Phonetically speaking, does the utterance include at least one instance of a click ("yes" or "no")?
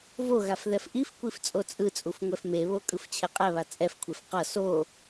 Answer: no